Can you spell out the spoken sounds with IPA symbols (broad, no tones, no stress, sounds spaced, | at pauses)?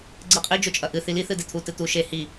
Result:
ɡ͡ǀ ɨ qʼ i d͡ʒ o t͡ʃʼ ɐ ʔ ɨ θ i l i θ ɨ d e t̪ʰ u t ɨ t̪ u ʃ e h i